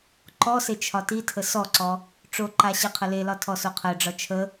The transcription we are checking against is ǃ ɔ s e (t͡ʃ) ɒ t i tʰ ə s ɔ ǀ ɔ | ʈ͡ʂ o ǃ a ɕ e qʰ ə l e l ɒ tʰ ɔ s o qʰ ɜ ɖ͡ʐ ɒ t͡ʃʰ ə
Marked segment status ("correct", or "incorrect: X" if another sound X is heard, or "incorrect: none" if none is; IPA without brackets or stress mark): incorrect: t͡ʃʰ